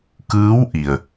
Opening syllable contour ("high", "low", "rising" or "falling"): rising